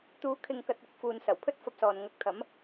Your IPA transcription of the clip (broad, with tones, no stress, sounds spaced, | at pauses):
t̪ uː˨˥ kʰ ɪ˨ ŋ k ɐ˨ t̚ ɪ˨˥ k̚ f uː˨ n s ɐ˨˩ w pʰ ɵ˥ t̚ f ɐ˧ p̚ s ɔː˨ n ŋ ɐ˧ k̚ t̪ʰ ɐ˨˥ m